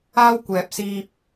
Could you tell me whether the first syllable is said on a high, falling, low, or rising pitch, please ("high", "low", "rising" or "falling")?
high